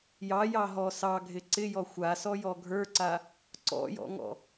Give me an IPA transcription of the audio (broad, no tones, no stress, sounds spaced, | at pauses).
j ɑ j ɑ ɦ ɔ s ɑ ɡʱ ɪ ǀ ɪ j ɔ xʷ a s ɔ j ɔ ɡʱ ə˞ ǀ a | ǀ ɔ̰ j ɔ̰ ŋ ɔ̰